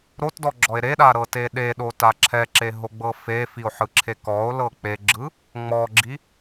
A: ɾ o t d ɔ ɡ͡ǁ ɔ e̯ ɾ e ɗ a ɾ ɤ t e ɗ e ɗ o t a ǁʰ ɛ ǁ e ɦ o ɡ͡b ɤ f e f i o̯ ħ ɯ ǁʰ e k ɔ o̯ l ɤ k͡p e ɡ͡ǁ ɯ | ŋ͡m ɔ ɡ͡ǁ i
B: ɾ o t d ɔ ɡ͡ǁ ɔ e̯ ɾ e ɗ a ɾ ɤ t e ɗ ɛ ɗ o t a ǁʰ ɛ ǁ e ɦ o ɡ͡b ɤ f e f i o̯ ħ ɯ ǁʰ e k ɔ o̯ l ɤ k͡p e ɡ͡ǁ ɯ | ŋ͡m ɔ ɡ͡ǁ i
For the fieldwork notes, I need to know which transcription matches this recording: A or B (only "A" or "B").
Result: A